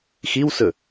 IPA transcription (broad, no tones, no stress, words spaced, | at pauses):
xiwsɵ